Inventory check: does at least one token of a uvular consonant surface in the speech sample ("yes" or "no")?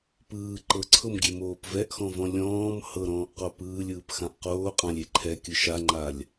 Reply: yes